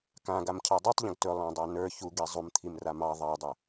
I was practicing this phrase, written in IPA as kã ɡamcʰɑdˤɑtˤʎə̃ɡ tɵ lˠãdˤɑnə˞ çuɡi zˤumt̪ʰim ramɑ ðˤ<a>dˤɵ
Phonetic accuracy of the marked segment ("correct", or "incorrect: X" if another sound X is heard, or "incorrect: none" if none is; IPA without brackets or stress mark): incorrect: ɑ